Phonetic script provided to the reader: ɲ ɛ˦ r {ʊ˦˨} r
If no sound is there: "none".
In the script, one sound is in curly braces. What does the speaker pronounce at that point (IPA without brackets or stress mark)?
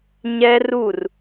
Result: u˦˨